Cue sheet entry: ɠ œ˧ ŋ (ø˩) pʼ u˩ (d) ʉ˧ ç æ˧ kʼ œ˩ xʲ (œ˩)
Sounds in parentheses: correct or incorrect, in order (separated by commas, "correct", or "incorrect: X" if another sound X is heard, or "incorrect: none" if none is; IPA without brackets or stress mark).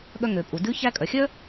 correct, correct, incorrect: œ˥